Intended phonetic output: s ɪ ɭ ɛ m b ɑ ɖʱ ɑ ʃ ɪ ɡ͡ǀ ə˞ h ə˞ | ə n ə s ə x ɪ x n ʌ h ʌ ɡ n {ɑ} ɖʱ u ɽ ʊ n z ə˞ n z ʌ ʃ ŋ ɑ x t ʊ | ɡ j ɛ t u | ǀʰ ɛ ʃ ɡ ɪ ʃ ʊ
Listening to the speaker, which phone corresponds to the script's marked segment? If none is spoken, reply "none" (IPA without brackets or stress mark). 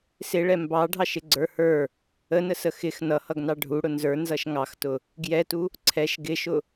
ɑ